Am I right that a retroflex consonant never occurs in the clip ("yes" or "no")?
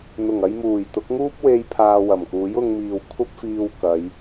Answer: yes